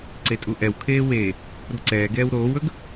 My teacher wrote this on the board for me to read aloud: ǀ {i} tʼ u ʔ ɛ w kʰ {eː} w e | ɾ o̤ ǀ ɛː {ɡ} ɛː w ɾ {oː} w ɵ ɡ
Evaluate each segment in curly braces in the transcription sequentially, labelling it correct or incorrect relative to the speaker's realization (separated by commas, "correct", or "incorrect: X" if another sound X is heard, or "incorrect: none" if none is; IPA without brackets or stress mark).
incorrect: e, correct, correct, correct